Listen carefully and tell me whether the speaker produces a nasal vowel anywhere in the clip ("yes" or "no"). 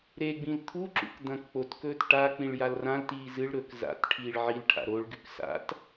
yes